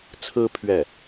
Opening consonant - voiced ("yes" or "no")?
no